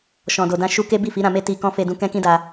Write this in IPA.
ʃɔ̃˨do˨dã˧ ʃu˦ ke˦bi˦˨fi˨˦ ɾã˧me˦ ti˧kɔ̃˦ fe˧dũ˧ kɛ̃˦kĩ˦da˧

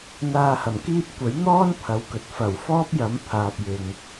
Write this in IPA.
n̪aː˧hɐ˨˩mkiː˥p̚ kʷɐ˨˥jn̪ɔː˥n pʰɐ˨˧wkɵ˨t̚ fɐ˨˩w fɔː˥p̚jɐ˨˥m pʰaː˨p̚jɪ˨ŋ

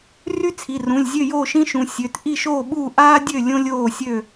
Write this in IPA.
ry˥t͡sʰi˩˧˩rũ˩˧˩lʲzʲø˥˨ jo˥˨ʃĩ˥ʃũ˩˧˩ sʲø˩˧˩t ʔi˥˨ʃoː˥˨ɓuː˥˨ ʔaː˥dʲø˥˨ lʲõ˥lʲoː˥˨sʲø˥˨

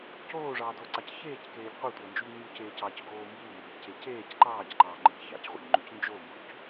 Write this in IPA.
coːʐɑːdoːǀɑc çeːckeːʎ qʷetʷɑnd͡ʒuʎ ɲuceːc ɑcɡoː mbumbeʎce ceːc ǃɑːcǃɑːŋ͡ǃḛʎ çɑ̰cʁʷḛʎŋ͡ǃʉc nd͡ʒombuc

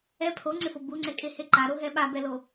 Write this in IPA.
ɛ pʰoŋ͡ǀɪfo buŋ͡ǀɛkʼehe ǃaɾoɦɛ ɓabɛlo

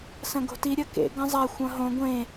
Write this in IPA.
sɐ̃ɡo̤ti ɾʲɐkḛ ɡɐ̃zˤa xʷɐ̃ɦõ ɡʷẽ

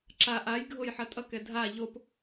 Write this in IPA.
ǁa ʔajɡʱoj ħʌtʼʌkɛ dʱa ʎop

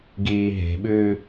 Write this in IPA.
ɡiːɦe̤ɓʉː

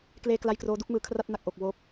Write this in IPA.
kleː˥˩kla˥˩j kroː˦˥du˥˩k̚mɯː˧kʰra˥˩t̚ na˨˩k̚ʔo˨˩k̚ woː˦˥p̚

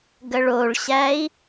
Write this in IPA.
ɡəɭoɭɕæi̯

